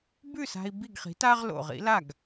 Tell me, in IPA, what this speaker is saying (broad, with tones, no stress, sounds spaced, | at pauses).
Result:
b ʉ˥˩ s a̤˧ i̯ b i˥˩ ɡ χ i̤˩˥ t a˥ ʁ l o̰˩ ʁ ḭ˥ l a˥˩ ɡ